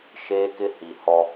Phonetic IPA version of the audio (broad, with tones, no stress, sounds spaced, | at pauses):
ʃ eː˦ k ɪ˦ h i˨ h ɔ˦